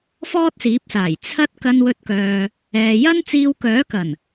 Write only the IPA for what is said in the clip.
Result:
f ɔː˥ t̚ s iː˨˥ p̚ s aː˨˩ j t͡sʰ ɐ˥ t̚ k ɐ˧ n w ɵ˧ t̚ k œː˨ | ɛː˨ j ɐ˥ n t͡s iː˧ w k œː˨˥ k ɐ˨˩ n

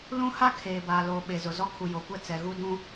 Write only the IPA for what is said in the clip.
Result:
l ũ˦ h a˦ kʰ eː˨ b aː˨ l oː˨ ɓ e˨ z ʊ˨ z ɔ˦ kʰ u˨ j o˨ kʷ ɛ˦ t͡s ɛ˨ ɣ u˦ d ũ˦

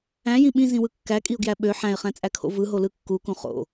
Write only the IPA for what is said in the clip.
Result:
æ̃ j ĩ ɓ ĩ z ĩ w ɯ kː æ kʼ i ʊ̯ ɡ j æ ɓ ø ħ æ̃ ɪ̯ χ æ̃ t͡sʼ æ kʰ o̰ v ɯ ɦ o l ɯ kː u k ũ χ o̰

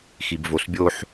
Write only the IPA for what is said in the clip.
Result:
x i b v o s bʲ o ħ

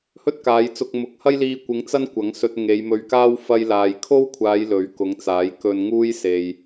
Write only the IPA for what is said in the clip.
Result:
h ɵ˥ t̚ k aː˨˧ j t͡s ʊ˧ k̚ m ʊ˨˥ k̚ h ɐ˥ j l iː˧ kʷ ɪ˨˧ ŋ t͡s ɐ˥ n kʷ ɐ˨˥ ŋ s ɵ˧ t̚ ŋ e˨˧ j m ɵ˧ ɥ k aː˥ w f ɐ˧ j l aː˨ j kʰ o˥ w kʷʰ aː˨˧ j l ɵ˨˥ ɥ k ʊ˨˥ ŋ t͡s aː˨˥ j k ɵ˧ n ŋ uː˥ j s e˨ j

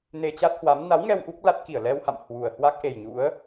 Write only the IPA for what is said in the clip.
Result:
n e˧ t͡ɕ a˦˥ t̚ h w a˨˦ m n a˨˦ w ŋ ɛ˧ w ʔ u˦˥ k̚ l a˦˥ t̚ k i˧˩ ə̯ l ɛ˧ w h a̰˧˨ m h w u˨˩ ə̯ h w a˦˥ k̚ ʔ e˨˩ j ɲ ṵ˧˥ ə̯

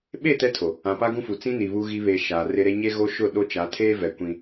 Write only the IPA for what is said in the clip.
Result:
ɓ e˦˨ t ɛ˦ tʰ o˨ | ã˨ p a˦ ɡ ũ˦ f u˨ t͡s ĩ˦ n i˨ β u˦ ɣ i˦ β e˨ ʃ aː˨ r ɪ˦ ɾ e˦ ɲ e˦ ɣ o˦ ʃ ʊ˦˨ ɗ o˦ t͡ʃ a˨˦ tʰ eː˦ v ɛ˨ kʷ ĩ˦

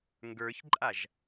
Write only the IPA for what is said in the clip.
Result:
ŋ ɡ ə˞ ç ǃʼ a ʒ

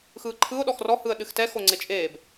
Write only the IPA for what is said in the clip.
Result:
x ɯː ǃʰ ɯ ʊ̯ ɗ ɔ x r ɔ h ɯ ə̯ ɗ ɨ x t ɛ x o ŋ͡ǀ e t͡ʃʼ eː b

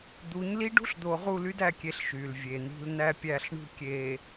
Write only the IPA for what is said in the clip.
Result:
d̪ u˨˦ ɲ l i˦ ɖ ṳ˦ ɬ d̪ o˨ ʁ u˦˨ l y˦ d æ˦˨ kʲ e˨ ɬ ʃ y˨ l vʲ e˨ n̪ i̤˦ l n æ˦ pʲ æ˦˨ ɬ ɳ ṳ˦ kʲ e˨

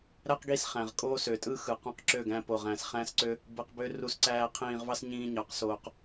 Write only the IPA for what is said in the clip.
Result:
ɾ æ˦ q ɡ i˦˨ s χ æ̃˨ ʁ kʼ oː˦ s ø˨ tʼ ɯ˦ x ɯ˨ q ũ˧ q ǁ ø˦˨ ɡ æ̃˧ p o˨ ʁ æ̃˨ s χ æ̃˦ s ǀ ø˦ | b ɯ˧ q b ø˦ r u˧ s ǀ æː˧ qʰ ĩː˧ ʁ v ɑ˦ s ɲ ĩː˧ ɲ ɑ˨˦ q s oː˨ q

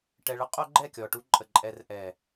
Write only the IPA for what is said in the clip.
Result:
ʈ ɛ˨ ɭ ɐ˦ qʼ o˦ ɡ͡ǃ ɛ˦˨ kʲ ɔ˨ ʈ u˧ ǃʼ ə˨ ǃʼ ɛ˨ r ʔ ɛ˨

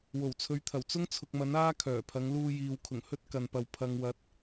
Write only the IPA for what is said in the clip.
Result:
w o˨˩ w t͡sʰ ɵ˨˧ ɥ t̪ʰ ɐ˨˩ w t͡s ʊ˥ ŋ t͡sʰ ʊ˨ k̚ m ɐ˨˥ n aː˥ kʰ œː˨˩ pʰ ɐ˨˧ ŋ l uː˧ j iː˨ w kʰ ʊ˨˩ ŋ h ɵ˥ t̚ k ɐ˨ n p ɐ˨ w pʰ ɐ˨ ŋ w ɐ˨˥ t̚

